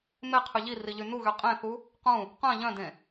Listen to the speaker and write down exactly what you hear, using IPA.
m e qʰ y ʎ i r i ʎ y n u ɣ y qʼ ẽ θ u | q ũ | q œ̃ ʎ œ̃ d ẽ

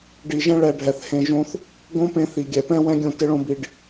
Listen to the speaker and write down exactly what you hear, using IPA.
ɖ i˨ ʒ ɛ̃˦ ɭ ɛ˧ ɖʱ ɛ˨ θ h ẽ˧ ʒ õ˦ θ | ɡ õ˦ p ẽ˧ θ i˨ ɡʲ ɛ˨ p ɛ̃˦ w ɛ̃˦ ɡʲ õ˦˨ t ɪ˦ ɭ õ˦ b i˧ ɖ

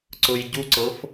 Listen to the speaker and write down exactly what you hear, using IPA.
ǀ ʊ j ɟ u ǀ ɤ f

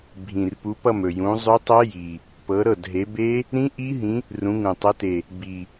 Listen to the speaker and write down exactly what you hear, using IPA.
bʱ ĩ˨˩ r p u˨˦ p ʌ˥˨ m ɵ˨˩ j ũ˨˦ zˤ ɵ˦˥ tˤ ʌ˦˥ j i˨˩ | p ɤ˨˦ ɾ ɤ˥˨ d ɦ e˨˦ b e˦˥ | ɾ ĩ˦˥ ʔ i˦˥ ɦ ĩ˨˦ | r ũ˨˦ ŋ ũ˨˩ tˤ ʌ˨˦ t e˨˩ | b i˨˩

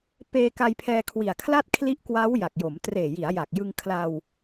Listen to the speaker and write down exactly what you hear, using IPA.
p eː˧ k a˧ j pʰ ɛː˧ kʰ w i˨˩ a̯ kʰ l a˥˩ t̚ kʰ l i˦˥ ʔ k w aː˦˥ w j a˨˩ k̚ j o˩˦ m t r eː˨˩ j i˩˦ a̯ j a˨˩ k̚ j ɯ˧ ŋ kʰ l a˧ w

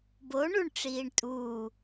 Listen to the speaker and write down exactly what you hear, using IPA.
b o ɳ u ɳ ʈ͡ʂ iː ɳ tʼ u

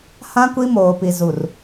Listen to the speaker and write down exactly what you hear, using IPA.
h ã˦ kʷ i˦ m oː˨ p i˨ z u˨ r

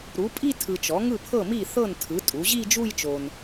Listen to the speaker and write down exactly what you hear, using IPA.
ɾ u˩˥ pʼ i˥˧ tʰ ɯ˨ t͡ʃ ɔ˩˥ ŋ ɯ˥˩ pʰ ɤ˥˩ m i˥˩ θ ɤ˥˩ n tʰ ɯ˩˥ tʼ u˩˥ ʑ i˥˧ d͡ʒ u˥˧ j t͡ʃ o˨ n

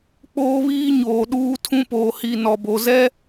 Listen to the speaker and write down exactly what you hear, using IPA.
k͡p oː˦ β iː˦ ɲ oː˨ ɗ uː˦ tʰ ũ˦ p oː˨ h i˨ n ɔ˨ b o˨ z ɛ˦

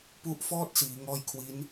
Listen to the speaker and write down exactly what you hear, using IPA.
p u˦˥ ʔ f ɔː˥˩ t̚ s iː˩˦ ŋ ɔː˦˥ j kʰ w i˦˥ n

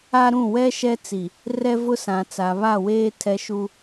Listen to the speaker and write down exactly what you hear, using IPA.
a˦ ɾ ũ˦˨ w ɛ˦ ʃ ɛ˦ t͡s i˨ | r ɛ˦ v ʊ˦ s ã˨ t͡s a˨ β a˦˨ w eː˦ tʰ ɛ˦ ʃ u˦

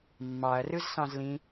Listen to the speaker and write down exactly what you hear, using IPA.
mː ɑ ɐ̯ r ɯ z s ɑ̃ z l ĩ

